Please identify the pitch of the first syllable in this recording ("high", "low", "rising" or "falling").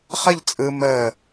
falling